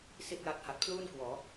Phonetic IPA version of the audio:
s i˥˩ t̚ j a˦˥ t̚ h a˨˩ t̚ pʰ l uː˥˩ n k w ɔː˩˦

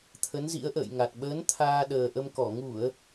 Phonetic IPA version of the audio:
t̪ʰ ə˨˦ n z ḭ˧˥ ə̯ ʔ ə̰ː˧˨ j ŋ a˨˩ t̚ ɓ əː˨˦ n t̪ʰ aː˧ ɗ əː˨˩ ʔ ə˧ m k ɔ˧˩ ŋ u˧˩˨ ə̯

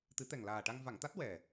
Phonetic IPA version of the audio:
t̪ ɨ˨˩˦ t̪ ɛ˨˩ ŋ l aː˨˩ ʈ a˧ ŋ v a˨˩˨ ŋ t̪ a˦˥ t̚ w ɛ˨˩

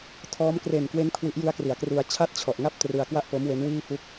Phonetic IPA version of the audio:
tʰ ɔː˦˥ m k r e˨˩ n k w e˦˥ n kʰ w i˦˥ ʔ j ɯ˦˥ a̯ k r i˩˦ a̯ k r u˧ a̯ t͡ɕʰ a˥˩ t̚ t͡ɕʰ ɔ˨˩ ʔ ŋ a˥˩ p̚ t r ɯ˧ a̯ k w a˥˩ ʔ p o˦˥ m w e˦˥ n w iː˥˩ f u˥˩ k̚

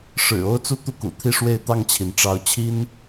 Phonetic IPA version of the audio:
ʂ ɻ̩˨˩ o˥ ʊ̯ t͡s u˥ t̪ u˥˩ k ṵ˨˩ t̪ʰ i˥˧ ʂ w e˥˧ ɪ̯ t̪ ɑ˥˩ ŋ t͡ɕʰ i˩ n ʈ͡ʂ ɑ˧˥ ʊ̯ t͡ɕʰ i˥ n

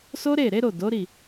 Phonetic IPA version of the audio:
s o˦ ɾ e˦˨ ɾ e˨˦ ɾ o˦˨ d o˨˦ ɾ i˦˨

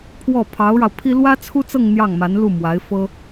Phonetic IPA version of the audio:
pʰ w ɔ˥˩ pʰ ɑ˧˥ ʊ̯ ɻ ɑ˧ ʊ̯ pʰ i˥ l w ä˥ t͡sʰ u˥ t͡s ɤ˥˧ ŋ n̪ j ɑ˥˩ ŋ m a˧˥ n l u˥˩ m w a˧˥ ɪ̯ f ɤ˥

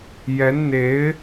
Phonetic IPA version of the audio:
j ɛ˧˥ n n̪ e˧˥ ɪ̯

